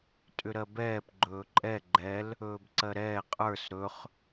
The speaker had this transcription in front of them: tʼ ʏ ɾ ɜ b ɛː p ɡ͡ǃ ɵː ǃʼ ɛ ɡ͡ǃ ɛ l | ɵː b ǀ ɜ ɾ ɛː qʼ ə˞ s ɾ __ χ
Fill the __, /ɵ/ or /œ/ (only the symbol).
ɵ